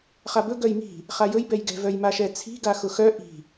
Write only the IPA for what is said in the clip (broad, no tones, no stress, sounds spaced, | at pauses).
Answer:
χ a b ɵ ɡ œ j m i̤ | χ a j ɵ j b ɛ j ɡ ɛ̤ v œ j m a ʃ ɛ t͡sʰ i̤ ɡ a x ʊ x œ ʔ i̤